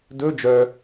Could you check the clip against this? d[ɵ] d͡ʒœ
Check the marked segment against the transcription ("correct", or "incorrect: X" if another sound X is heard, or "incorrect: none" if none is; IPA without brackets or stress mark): correct